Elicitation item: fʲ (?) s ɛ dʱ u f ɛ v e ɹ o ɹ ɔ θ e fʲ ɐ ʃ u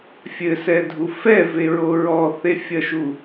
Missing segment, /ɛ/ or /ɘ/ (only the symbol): ɘ